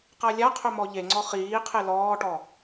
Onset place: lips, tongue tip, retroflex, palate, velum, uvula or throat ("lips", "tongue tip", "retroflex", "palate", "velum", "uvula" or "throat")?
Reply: uvula